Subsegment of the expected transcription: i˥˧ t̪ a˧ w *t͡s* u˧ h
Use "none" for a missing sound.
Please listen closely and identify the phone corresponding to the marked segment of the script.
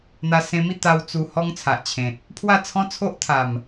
t͡s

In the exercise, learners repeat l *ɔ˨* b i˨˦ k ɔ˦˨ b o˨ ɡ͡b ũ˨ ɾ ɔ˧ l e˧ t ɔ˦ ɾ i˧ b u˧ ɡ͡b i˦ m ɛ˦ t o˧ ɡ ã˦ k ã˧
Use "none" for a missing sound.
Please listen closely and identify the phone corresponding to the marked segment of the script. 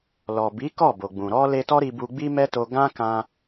ɔ˨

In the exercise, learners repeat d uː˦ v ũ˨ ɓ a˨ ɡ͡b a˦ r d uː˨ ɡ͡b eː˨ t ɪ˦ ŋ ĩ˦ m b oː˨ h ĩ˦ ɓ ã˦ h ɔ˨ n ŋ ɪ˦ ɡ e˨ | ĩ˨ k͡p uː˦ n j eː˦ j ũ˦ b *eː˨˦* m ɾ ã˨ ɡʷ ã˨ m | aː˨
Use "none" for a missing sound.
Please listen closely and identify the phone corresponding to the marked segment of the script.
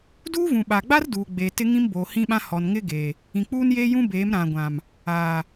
eː˨˦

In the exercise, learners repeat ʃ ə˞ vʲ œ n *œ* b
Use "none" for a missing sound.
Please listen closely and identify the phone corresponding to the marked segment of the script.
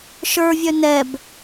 ɛ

